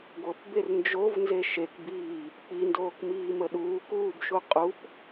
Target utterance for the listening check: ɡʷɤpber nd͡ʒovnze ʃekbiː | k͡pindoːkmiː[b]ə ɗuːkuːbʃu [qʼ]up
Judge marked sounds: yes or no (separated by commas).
no, yes